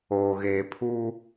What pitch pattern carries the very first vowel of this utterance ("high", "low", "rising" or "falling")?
low